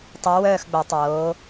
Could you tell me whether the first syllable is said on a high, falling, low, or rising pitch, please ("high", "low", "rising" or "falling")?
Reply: rising